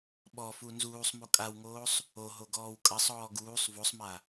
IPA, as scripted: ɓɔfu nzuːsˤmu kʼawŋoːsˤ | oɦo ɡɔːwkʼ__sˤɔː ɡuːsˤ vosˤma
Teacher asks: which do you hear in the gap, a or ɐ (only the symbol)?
ɐ